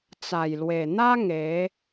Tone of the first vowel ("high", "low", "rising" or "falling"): low